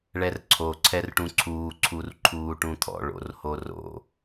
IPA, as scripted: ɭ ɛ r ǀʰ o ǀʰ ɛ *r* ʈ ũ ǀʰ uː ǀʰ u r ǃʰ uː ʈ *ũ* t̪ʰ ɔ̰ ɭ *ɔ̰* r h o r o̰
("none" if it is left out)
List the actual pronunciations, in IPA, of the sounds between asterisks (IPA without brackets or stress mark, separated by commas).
r, ũ, o̰